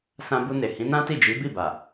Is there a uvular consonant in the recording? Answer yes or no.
no